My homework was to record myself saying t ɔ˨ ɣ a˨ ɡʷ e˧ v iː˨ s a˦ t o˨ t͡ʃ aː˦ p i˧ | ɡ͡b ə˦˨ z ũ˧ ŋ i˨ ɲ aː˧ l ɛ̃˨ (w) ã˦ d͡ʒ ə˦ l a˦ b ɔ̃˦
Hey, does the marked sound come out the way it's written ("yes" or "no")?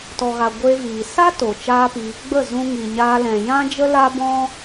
no